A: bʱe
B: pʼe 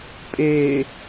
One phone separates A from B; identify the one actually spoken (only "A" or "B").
B